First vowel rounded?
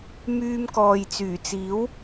yes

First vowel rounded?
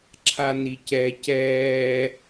no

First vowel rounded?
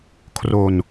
yes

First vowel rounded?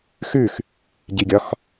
yes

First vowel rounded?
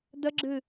no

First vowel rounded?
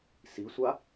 no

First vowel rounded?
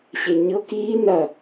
no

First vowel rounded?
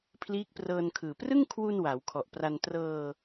no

